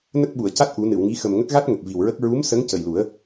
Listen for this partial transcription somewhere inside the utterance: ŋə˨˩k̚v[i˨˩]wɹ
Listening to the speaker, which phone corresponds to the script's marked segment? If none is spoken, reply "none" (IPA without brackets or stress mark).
i˨˩